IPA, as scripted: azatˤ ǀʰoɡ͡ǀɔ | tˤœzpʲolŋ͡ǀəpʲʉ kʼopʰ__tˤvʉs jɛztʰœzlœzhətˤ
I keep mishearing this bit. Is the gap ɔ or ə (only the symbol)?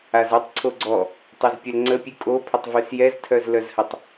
ə